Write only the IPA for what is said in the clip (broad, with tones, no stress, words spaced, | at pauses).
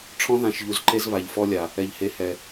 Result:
ʈ͡ʂʰɔ̃˦ðã˨ʃʎu˨z ǃe˦zβa˨ʎfɔ˦lʲa˨ | ɛ˨ʎhe˨hɛ˨